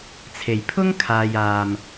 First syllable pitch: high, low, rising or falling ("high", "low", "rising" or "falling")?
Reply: low